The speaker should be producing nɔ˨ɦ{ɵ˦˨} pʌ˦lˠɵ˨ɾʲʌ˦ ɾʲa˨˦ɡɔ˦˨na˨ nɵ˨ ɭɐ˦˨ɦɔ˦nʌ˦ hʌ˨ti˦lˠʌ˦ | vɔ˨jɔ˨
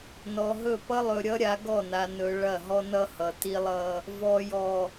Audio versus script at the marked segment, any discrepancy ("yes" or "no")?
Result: no